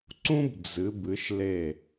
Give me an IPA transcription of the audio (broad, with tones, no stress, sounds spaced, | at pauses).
ǀ ũ˥ b d͡z ɨ˩˧ b ɨ˩˧ ʃ l e˧˩